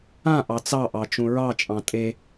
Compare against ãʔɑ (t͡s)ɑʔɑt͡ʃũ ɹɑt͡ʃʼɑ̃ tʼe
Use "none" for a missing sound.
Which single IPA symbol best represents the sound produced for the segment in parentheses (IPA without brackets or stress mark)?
t͡s